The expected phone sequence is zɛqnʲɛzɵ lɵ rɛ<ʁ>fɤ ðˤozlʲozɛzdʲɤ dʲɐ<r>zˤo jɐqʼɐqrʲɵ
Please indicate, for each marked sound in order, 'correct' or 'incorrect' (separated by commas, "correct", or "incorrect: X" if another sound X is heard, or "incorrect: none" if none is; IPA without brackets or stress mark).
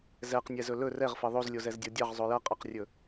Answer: correct, incorrect: ʁ